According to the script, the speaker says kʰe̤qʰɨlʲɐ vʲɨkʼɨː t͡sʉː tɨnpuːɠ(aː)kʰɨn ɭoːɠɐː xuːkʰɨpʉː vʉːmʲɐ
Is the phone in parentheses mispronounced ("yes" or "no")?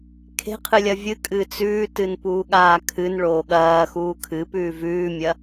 no